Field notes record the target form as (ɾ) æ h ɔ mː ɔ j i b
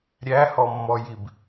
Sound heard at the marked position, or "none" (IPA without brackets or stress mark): ɾʲ